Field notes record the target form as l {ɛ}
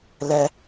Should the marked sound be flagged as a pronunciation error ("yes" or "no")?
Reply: no